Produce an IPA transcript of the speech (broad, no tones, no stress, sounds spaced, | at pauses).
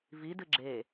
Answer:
v i d ɨ ɡ͡ǁ e